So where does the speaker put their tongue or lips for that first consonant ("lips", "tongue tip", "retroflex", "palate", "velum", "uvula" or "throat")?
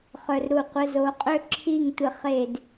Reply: uvula